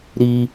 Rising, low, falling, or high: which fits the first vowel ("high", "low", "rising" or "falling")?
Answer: high